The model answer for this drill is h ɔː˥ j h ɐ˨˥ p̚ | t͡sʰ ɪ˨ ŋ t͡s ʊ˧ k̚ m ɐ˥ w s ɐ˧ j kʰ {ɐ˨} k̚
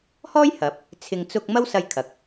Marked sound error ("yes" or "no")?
no